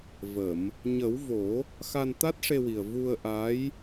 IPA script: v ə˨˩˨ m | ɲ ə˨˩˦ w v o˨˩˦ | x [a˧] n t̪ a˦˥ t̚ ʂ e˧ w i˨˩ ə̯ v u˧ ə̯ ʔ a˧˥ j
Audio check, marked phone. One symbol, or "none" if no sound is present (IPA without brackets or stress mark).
a˧